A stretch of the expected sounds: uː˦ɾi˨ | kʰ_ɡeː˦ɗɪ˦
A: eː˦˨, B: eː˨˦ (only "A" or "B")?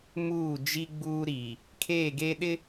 A